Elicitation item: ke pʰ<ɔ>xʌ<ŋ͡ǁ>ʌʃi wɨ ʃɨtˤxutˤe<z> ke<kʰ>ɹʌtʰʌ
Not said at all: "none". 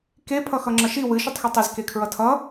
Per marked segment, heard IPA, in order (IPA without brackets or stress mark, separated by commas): ʌ, ŋ͡ǁ, z, kʰ